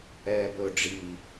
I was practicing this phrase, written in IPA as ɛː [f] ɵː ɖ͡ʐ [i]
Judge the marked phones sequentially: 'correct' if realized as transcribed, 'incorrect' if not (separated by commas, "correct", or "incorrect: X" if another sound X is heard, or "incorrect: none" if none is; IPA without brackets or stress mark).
incorrect: b, correct